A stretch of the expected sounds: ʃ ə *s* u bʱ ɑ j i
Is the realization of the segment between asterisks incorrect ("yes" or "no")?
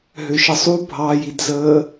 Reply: yes